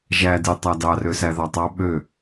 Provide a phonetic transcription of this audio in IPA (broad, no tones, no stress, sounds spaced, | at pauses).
ʒ æ d e tˤ æ d ɑ r ø s æ ð ɑ tˤ ɑ ɓ ø